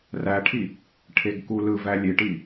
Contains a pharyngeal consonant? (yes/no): no